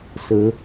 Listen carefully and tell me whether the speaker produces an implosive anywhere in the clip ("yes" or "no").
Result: no